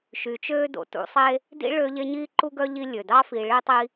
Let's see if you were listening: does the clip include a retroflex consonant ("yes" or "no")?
yes